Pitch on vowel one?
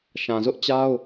low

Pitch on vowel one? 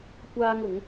high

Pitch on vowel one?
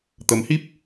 rising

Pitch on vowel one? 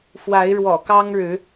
rising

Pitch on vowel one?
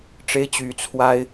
high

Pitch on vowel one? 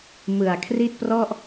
low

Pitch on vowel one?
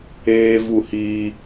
high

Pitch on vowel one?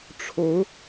rising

